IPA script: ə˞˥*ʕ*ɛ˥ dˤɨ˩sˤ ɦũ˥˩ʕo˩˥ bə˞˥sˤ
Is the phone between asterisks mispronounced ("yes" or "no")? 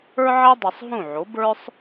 no